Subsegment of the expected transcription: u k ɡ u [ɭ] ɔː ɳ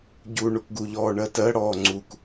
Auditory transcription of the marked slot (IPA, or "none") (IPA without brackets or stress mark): ʎ